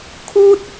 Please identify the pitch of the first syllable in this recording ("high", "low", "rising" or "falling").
high